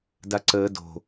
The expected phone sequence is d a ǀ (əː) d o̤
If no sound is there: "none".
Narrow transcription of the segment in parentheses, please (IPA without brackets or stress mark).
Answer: əː